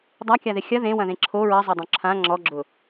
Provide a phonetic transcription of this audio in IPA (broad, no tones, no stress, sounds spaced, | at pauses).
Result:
dˤ a kʲ a ð ɪ xʲ ɐ ð ẽ w ɐ̃ ð ẽ ǁʰ o ɹ ɐ zˤ ɐ dˤ õ ǁʰ ã ŋ͡ǁ ɔ ɡ͡ǁ ʊ